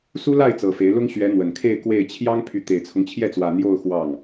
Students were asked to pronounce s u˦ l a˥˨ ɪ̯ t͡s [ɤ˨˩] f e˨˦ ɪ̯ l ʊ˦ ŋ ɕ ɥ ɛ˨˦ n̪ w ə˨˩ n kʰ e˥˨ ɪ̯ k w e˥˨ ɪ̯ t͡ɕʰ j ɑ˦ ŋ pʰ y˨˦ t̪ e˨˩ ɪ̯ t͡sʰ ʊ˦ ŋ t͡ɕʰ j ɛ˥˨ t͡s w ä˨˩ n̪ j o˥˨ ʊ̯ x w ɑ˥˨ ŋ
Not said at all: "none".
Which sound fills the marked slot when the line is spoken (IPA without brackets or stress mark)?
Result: ɤ˨˩